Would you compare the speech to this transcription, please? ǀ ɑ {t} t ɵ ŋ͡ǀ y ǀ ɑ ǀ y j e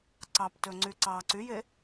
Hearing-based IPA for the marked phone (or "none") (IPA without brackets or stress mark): p